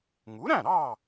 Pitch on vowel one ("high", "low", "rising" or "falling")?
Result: rising